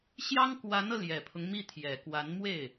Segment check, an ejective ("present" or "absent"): absent